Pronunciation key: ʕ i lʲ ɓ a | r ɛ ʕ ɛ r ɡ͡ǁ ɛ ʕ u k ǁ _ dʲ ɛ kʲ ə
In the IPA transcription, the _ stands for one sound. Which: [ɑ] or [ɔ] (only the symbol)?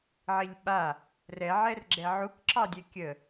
ɑ